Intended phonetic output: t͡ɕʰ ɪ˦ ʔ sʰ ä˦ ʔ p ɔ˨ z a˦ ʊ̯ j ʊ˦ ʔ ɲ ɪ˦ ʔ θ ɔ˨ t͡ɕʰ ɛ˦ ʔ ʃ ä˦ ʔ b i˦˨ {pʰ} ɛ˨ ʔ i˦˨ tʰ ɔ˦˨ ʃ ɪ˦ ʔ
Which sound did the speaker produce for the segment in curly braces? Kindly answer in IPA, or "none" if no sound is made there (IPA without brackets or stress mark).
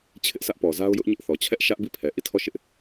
pʰ